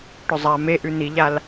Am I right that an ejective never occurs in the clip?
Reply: yes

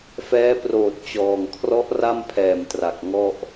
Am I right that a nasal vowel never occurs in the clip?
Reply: yes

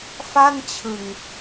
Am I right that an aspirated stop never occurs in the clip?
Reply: no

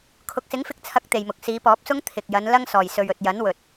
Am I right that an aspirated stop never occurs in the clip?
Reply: no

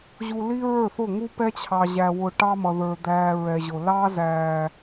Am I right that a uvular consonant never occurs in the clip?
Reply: yes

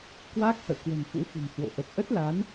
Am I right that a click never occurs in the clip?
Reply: yes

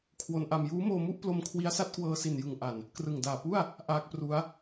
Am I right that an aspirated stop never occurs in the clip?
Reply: no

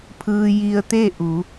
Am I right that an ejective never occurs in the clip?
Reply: yes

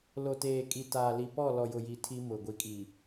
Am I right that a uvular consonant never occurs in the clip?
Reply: yes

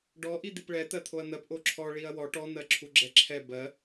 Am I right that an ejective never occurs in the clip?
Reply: yes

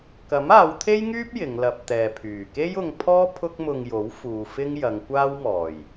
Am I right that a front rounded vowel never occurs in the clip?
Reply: no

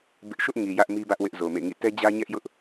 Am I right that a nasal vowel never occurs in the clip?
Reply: yes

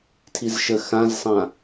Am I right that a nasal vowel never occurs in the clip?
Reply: no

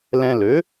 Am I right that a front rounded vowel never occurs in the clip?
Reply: no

